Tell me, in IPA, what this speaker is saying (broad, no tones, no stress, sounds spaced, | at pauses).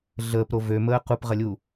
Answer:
ɮ əː p ɾ o v ø m əː q u p ʁ ɐ lʲ uː